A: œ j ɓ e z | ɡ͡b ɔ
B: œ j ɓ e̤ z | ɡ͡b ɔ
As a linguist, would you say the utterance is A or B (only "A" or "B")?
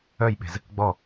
B